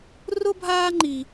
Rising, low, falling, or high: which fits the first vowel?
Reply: high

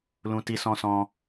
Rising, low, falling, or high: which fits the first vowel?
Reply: high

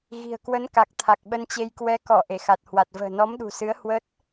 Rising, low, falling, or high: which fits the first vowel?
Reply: low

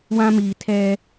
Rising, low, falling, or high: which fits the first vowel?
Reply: high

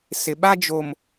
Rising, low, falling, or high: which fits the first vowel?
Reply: low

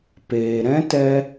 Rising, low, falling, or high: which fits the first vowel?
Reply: low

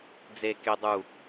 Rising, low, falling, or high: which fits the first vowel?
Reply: low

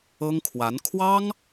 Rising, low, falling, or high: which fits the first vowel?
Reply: high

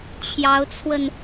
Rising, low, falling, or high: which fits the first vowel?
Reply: rising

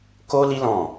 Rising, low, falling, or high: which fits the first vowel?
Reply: high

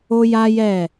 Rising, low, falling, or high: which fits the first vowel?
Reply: high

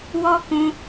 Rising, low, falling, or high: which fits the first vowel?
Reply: high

